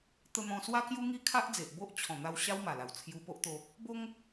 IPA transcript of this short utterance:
t̪ ə˧ n̪ ɔ̃˧ s w a˦ k j u˦ ŋ i˦ kʰ a˦ ʔ d͡z e˨ ʔ b o˦ ʔ t͡ɕʰ ɔ̃˨˩ n̪ a˧ w ɕ a˦ w m a˨˩ l a˨˩ w t͡sʰ j u˧ p o˦ ʔ t̪ o˧ | b o˦ ŋ

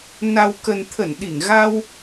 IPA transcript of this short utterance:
n a˨˩ w k ə˨˩ n t̪ʰ ə˧˩ n ɗ i˧˩ ŋ ɣ a˧ w

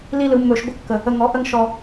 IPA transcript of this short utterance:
l i˦ l ɯ˨˦ mː ɵ˧ ʃ ɡʷ ə˦ kː ə˨ | ə˧ ŋ ɔ˨˦ ʔ ə˦ ŋ ʃ ɔ˧

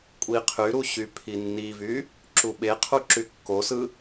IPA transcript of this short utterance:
kʷʼ i qʰ y ɾ u ɕ y pʰ i nː i v y | ǁ u ɓ e qʰ u ǁ y kː o s ɯ

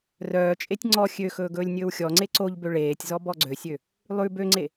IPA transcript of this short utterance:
r œː t͡ʃʼ e tʲ ŋ͡ǀ ɔ xʲ ø x ɵː ɡ ɵː lʲ nʲ ɵː w xʲ ɔ ŋ͡ǀ e ǀ o ʎ b ø ɭ eː tʲ z ɔ b ɔ ɡ͡ǀ ø sʲ ø | lˠ ʉ b ø ŋ͡ǀ e

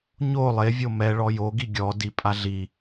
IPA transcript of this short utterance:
ɲ o lˠ e vʲ o m ɛ ɭ ɔ j o ɡ i ɡʲ ɔ d i pʼ a ɮ i

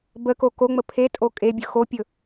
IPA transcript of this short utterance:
b ə k o k o ŋ͡m ə pʰ e tʼ o kʼ e bʲ ɵ x o pʲ ɵ

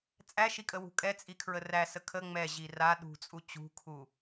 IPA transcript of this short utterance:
t͡sʼ æ ʃ i kʼ ə w ṳ kʼ ɛ t͡sʼ i kʰ ɹ ə r æ s ə kʰ ə ŋ͡m ɛ ʑ i r a ɗ ṳ t͡sʼ u t͡ɕ ṳ kʰ u

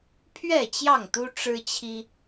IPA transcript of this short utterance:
pʰ ɥ ɛ˥˨ t͡ɕ j ɑ˥˨ ŋ t̪ u˦ ʈ͡ʂ ɻ̩˦ t͡ɕʰ i˦

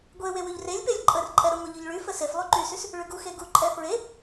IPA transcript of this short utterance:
ɡʷ e w e w ʉ ʎ r e lʲ p e lʲ ǃʼ ə r ǃʼ ɛ ɾ ə ŋʷ e ʎ y ʎ ɭ y f ə s e f lˠ y ǃ y s y s | ɭ ʉ ɡ u x e ɡ u ǃʼ ɛ f ɹ e

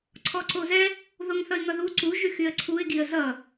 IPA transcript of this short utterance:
ǀʰ ɔ ǀ o z ɛ | ð o ŋ θ ʌ ɪ̯ ŋ ʌ ð u ǀ u ʒ y x y ə̯ ǀʰ u ɪ̯ ɡ i ə̯ z ʌ

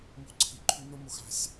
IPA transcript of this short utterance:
m o̤˦ ǀʰ i˨ ǃʰ ʉ˦ n o˦ m o˧ x a̤˧ sʲ

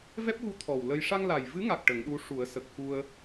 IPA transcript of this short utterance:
v ɛ˦˥ p̚ ɣ u˧˥ t̪ʰ ɔ˨˩ w l ə˧ j ʂ a˧ ŋ l a˨˩ j v ɨ˧˥ ŋ a˨˩ k̚ ʈ ə˨˩˦ ŋ ɗ u˧˥ ʂ u˨˩˦ ə̯ s ə˨˩ k̚ x u˧ ə̯

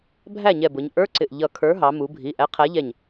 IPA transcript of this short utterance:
bʱ æ˥˩ ɲ ɛ˧˩ b ʊ˩˧ ɲ ʔ ə˞˧˥˧ ǀ ɪ˧˩ ʔ ʎ ʌ˧˩ kʰ ə˞˨˥ ɦ ɑ˩˧ m u˩˧ bʱ i˩˧˩ ʔ æ˨˥ qʰ æ˨˥ ʎ ɛ˧˩ ɲ

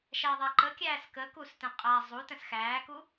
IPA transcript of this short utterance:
ʃ æ ðˤ a ǃ ə kʲ æː s k ə k u s t ɛ̃ qʼ a zˤ u t ə̃ s x æː k u

